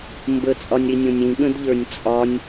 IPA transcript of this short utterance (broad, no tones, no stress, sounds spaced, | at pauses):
m b ə t͡sʼ ɒ nʲ ɾ i nʲ õ nʲ ĩ ɠ ə̃ d ʎ ə˞ nʲ t͡sʼ ɒ nʲ